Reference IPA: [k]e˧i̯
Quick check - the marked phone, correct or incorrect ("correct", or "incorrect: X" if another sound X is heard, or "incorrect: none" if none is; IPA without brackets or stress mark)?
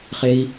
incorrect: χ